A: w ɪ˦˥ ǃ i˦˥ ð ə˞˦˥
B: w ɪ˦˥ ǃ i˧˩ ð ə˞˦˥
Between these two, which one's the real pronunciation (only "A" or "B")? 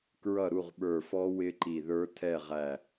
B